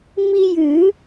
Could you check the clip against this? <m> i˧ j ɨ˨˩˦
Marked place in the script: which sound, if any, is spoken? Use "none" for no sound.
m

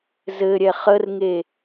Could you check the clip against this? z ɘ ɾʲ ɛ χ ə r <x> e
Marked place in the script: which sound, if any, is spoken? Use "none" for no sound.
ŋ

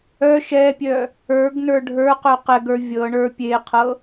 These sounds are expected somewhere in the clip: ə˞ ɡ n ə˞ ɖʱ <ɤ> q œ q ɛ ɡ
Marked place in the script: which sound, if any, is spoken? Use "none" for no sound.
ə˞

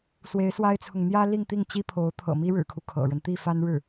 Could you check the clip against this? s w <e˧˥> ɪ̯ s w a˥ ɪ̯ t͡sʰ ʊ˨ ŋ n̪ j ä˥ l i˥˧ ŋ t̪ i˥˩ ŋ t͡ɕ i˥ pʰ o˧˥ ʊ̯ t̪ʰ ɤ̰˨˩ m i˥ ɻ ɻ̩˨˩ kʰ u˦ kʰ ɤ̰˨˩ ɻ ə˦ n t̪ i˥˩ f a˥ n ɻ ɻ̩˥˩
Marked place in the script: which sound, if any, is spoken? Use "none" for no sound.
e˧˥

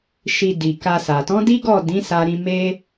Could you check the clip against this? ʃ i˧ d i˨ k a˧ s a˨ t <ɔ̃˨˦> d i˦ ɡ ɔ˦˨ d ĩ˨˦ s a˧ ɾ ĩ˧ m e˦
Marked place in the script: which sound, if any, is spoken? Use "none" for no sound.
ɔ̃˨˦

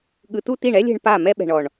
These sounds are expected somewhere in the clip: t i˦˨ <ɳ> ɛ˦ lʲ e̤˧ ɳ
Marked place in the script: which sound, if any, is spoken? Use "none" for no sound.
ɳ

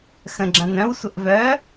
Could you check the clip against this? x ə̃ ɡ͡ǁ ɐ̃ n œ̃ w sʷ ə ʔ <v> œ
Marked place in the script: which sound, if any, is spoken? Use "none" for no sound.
v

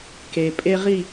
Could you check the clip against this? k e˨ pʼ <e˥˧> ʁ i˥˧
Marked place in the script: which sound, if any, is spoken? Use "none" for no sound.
e˥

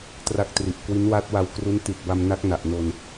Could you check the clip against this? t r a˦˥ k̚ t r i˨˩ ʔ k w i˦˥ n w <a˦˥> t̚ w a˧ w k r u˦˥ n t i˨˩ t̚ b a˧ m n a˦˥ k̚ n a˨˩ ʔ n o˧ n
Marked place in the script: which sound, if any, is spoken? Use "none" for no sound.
a˦˥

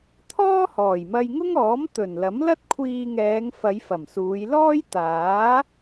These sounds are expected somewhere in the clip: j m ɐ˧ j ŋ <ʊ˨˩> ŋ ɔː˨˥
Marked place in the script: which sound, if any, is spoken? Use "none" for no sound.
ʊ˥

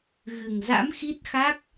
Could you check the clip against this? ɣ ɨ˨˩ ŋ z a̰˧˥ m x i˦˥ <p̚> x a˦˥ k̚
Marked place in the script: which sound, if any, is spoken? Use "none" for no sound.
t̚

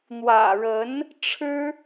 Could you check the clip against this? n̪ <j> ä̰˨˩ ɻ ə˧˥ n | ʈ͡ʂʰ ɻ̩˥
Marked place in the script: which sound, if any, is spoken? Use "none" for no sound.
w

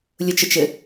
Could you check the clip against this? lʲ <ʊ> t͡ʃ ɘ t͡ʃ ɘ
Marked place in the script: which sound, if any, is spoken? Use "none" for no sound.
ʊ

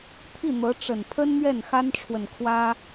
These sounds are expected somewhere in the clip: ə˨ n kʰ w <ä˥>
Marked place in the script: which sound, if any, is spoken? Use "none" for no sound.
ä˥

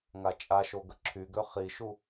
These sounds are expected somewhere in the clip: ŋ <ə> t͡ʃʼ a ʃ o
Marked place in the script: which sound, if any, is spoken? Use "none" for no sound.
a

